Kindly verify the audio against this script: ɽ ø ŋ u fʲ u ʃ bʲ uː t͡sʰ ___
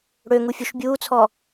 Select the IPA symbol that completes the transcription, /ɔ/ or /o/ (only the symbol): ɔ